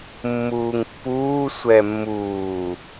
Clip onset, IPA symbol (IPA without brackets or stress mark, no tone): mː